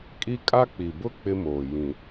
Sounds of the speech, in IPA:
kʼ i˦ kʼ a˦ k͡p i˨ b ʊ˦ k͡p ɪ˦ m oː˨ j ĩ˨

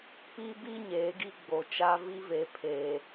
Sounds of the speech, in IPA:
p i˦ b i˦ ɲ eː˨˦ ɡ i˦ ɡ͡b o˨ t͡ʃ a˦ v i˦ v e˨ pʰ eː˨

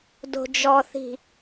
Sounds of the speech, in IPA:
d o̤ d͡ʒ ɔ θ i̤

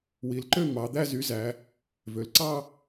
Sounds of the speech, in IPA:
w i˩˧ l ǃ ø˥˧ m ɑ˩˧ d̪ æ˥˧ z y˨˥ z æ˩˧ | v ø˩˧ l ǀ ɑ˥˧

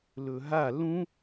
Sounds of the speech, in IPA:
l ɵ ɦ a l ũ

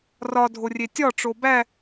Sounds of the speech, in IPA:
r ɒ dʱ o rʲ e tʲ ɒ ʈ͡ʂ o b æ

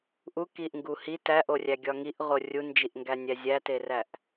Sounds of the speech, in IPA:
ʔ u k i ʔ ŋ ɡ u h i t æ ʔ o rʲ æ ɡʲ ɒ ŋ i ʔ ʁ o rʲ u n d͡ʒ i ʔ ŋ ɡ æ nʲ æ zʲ æ t e r æ ʔ

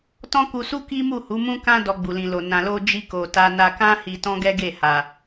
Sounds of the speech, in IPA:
t ɔ̃˦ k u˧ s u˦ k i˦ m u˦˨ h u˨˦ m ũ˦ k ã˦ d ɔ˧ ɡ͡b u˨ l ĩ˨ l o˨ n ã˨ l o˧ d͡ʒ i˧ k o˨ t a˧ n a˧ k ã˦ h i˧ t ɔ̃˦ ɡ ɛ˦ ɡ e˦˨ h a˨

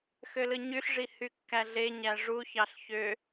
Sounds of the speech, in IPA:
x ø l ɯ ɲ y ɬ ʐ i h y kː æ ɮ e ɲ æ ʐ u ç ɑ ɬ ç ø

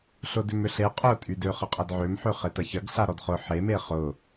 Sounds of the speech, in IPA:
ɬ ʊ d ʏ m ʏ ɬ e qʼ ʊ tʼ y d ø χ ə qʼ ɐ d ʕ ø m ħ ø χ e t ɐ ç ɐ ɡ ɬ a ɾ ɔ d χ ʊ ħ e m e χ ʊ

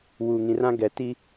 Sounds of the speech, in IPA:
w uː˨ ŋ ĩ˨ r ã˦ ɡ ɛ˨ t i˦

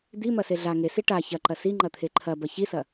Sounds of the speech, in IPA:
d̪ i m ɐ s e ɮ a ŋ e s i ʈ a ç ɐ ǃ ɐ s i ŋ͡ǃ ɐ t̪ʰ e ǃʰ ɐ b ɐ ç i s ɐ

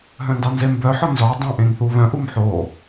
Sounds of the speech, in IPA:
ɦ œ̃ n d ɑ n z e m b œ ħ ɔ n z ɔ dˤ ɑ̃ ʔ ẽ ŋ θ u β œ̃ ʔ u m ħ o

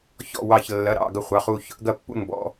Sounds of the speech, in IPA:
ç ɔ̰˥˧ w ɑ˥˧ ç lː ɐ˧˥˧ ɾ ɑ̰˥˧ ɡ ɐ˥˧ χʷ ɑ˧˥˧ χ u˥˧ ç | ɡ ɐ˥˧ pː ṵ˥˧ n b ɔ̰˧˥˧

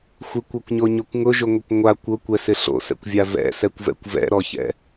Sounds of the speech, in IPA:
xʷ ɪ kʷ ɔ kʷ ɲ o ɲ o kʷ ŋ ʊ ʒ ʊ ŋʷ ɪ kʷ ŋʷ a kʷ ʊ kʷ ɛ s ɪ ɬ o̰ s ɛ̰ kʷ vʲ a v ɛ̰ s ɛ kʷ v ɛ̰ kʷ v ɛ̰ ɾ ɔ ç ɛ̰

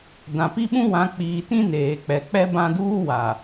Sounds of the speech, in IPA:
d ã˨ p i˦ ɓ ũ˦ w ã˨˦ k͡p iː˨ t ĩ˦ n eː˨ k͡p ɛ˨ k͡p ɛ˦ b ã˦ d uː˦ w a˨

